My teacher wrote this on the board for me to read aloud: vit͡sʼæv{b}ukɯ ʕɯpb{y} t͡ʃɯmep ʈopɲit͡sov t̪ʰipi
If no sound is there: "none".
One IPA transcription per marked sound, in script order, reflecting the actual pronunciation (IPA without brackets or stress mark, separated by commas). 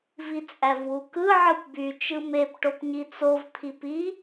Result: w, y